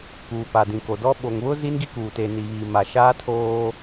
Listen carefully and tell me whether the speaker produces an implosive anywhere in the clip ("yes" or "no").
yes